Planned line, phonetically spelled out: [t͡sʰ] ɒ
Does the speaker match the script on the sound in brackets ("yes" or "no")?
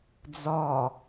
no